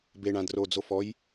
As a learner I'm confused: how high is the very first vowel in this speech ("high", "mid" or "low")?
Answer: mid